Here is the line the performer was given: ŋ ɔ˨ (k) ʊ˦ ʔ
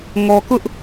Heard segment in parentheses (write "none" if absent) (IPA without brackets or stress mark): k